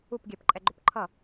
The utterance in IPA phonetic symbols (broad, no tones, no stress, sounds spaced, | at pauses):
u p ɡʲ ɛ p ǃʼ ɛ ɡ͡ǃ o p ǃʰ ʌ